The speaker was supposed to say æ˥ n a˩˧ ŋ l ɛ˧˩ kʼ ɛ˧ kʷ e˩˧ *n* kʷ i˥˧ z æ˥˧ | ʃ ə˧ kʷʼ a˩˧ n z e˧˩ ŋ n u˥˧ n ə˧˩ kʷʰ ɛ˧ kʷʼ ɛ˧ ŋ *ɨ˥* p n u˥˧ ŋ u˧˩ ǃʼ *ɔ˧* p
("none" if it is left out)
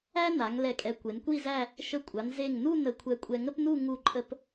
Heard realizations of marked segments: n, ə˥, ə˧

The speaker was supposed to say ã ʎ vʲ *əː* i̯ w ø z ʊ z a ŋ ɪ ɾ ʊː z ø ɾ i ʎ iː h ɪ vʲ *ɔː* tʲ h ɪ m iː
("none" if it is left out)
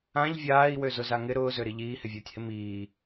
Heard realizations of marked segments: aː, ʊː

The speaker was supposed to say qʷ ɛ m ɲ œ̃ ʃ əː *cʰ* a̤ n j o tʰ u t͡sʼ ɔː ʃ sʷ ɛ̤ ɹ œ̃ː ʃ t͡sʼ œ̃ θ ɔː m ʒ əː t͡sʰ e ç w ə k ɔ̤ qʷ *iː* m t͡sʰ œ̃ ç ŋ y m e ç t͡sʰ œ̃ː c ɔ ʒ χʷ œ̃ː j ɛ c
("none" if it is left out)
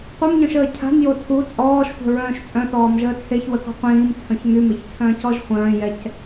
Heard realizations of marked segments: cʰ, ĩː

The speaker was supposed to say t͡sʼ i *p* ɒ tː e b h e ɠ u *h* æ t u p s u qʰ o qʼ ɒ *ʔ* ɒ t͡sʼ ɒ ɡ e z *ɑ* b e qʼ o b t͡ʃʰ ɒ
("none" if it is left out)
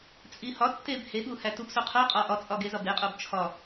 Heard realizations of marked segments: h, h, ʔ, ɒ

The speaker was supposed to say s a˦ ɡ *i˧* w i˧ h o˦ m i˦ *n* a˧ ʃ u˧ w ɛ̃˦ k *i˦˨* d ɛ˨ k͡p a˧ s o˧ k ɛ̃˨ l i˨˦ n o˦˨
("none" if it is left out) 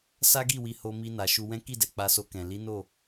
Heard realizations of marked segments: i˦˨, n, i˦˨

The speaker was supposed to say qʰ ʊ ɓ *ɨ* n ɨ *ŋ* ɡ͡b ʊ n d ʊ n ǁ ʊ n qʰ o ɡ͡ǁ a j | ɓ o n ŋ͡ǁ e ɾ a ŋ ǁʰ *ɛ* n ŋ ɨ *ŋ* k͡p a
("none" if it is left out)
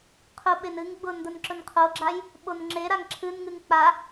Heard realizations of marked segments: e, ŋ, ɨ, ŋ

